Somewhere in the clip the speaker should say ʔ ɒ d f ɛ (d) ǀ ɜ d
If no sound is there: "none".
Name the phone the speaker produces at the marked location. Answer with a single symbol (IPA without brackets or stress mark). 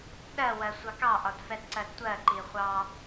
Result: d